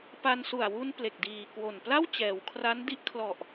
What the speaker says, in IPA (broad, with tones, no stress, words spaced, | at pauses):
pa˧nsu˨˩a̯wu˧n ple˨˩k̚diː˨˩kwo˨˩npla˥˩w t͡ɕɛː˩˦wkʰra˦˥ndi˦˥ʔkʰlɔ˨˩ʔ